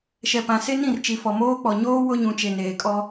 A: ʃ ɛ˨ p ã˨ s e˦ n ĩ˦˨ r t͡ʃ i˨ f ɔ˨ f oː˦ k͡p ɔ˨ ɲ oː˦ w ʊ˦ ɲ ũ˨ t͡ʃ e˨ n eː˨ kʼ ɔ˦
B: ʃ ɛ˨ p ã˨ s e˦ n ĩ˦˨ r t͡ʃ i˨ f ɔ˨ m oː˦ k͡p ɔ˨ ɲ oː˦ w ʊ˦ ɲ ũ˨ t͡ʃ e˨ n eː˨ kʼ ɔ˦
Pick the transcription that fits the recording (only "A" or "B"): B